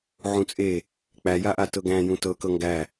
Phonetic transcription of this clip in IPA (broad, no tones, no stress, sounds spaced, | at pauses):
ʕ ũ t͡sʼ e | k͡p æ j a ʔ a t ɤ ɡ æ̃ j ũ t ɤ k ɤ ŋ ɡ æ